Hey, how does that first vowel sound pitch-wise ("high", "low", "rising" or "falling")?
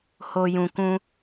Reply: low